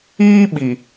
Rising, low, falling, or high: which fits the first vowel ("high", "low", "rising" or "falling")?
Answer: high